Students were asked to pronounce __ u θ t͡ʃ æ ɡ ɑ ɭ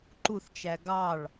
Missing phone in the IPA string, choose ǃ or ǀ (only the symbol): ǃ